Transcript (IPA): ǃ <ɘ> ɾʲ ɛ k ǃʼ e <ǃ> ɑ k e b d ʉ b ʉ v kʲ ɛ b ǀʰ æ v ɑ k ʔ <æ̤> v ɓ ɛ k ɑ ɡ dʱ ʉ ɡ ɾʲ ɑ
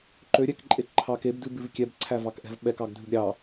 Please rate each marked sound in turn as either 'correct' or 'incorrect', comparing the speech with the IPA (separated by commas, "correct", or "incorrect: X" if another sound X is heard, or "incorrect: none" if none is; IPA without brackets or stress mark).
incorrect: ø, incorrect: ǃʰ, incorrect: ɛ̤